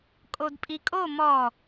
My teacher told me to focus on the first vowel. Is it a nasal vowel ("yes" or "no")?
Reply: no